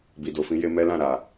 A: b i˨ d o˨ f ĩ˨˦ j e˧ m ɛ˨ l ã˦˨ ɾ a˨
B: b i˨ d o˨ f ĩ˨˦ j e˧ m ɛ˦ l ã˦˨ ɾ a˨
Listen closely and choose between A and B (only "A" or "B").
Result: B